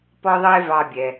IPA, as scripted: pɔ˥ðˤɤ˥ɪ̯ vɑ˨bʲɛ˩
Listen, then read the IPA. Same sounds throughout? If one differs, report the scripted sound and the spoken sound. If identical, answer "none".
none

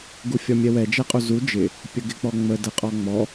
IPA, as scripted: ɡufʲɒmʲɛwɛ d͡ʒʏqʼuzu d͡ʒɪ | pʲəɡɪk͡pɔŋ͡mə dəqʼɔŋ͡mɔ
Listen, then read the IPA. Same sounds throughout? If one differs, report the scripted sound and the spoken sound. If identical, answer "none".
ʏ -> ɛ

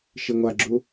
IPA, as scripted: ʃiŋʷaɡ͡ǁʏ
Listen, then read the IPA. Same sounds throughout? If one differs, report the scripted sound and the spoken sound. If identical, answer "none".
ʏ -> u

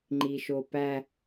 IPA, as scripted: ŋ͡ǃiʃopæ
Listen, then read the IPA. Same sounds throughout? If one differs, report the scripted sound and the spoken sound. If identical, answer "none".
none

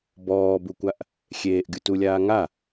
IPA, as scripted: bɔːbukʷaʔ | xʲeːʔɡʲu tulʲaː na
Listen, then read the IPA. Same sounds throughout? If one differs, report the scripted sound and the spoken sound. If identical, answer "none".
n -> ŋ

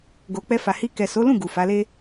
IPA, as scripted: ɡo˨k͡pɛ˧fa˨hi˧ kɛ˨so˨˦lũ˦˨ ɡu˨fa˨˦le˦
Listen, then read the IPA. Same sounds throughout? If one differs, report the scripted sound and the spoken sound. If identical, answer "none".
none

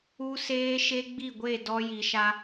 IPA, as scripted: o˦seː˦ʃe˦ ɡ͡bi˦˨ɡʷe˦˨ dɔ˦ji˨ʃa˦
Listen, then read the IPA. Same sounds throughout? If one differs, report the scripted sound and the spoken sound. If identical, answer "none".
o˦ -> u˦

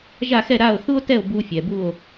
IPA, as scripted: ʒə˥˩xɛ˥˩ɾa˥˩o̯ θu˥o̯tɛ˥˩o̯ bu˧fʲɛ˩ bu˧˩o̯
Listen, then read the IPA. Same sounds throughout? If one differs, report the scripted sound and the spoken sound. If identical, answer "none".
ə˥˩ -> a˥˩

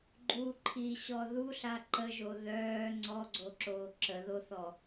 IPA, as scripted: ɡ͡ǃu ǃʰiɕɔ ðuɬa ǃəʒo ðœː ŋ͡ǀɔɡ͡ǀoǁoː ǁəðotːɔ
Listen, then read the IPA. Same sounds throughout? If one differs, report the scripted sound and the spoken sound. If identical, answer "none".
tː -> θ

